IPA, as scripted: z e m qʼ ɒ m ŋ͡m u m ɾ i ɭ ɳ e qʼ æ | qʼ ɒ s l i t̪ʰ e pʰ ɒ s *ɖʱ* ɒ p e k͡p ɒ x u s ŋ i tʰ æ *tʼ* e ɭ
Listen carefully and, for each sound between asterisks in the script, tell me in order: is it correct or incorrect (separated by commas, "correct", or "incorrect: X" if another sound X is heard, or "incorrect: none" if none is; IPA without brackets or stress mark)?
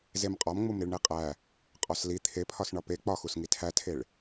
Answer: incorrect: ɳ, incorrect: tʰ